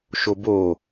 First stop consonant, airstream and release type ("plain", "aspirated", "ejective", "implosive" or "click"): plain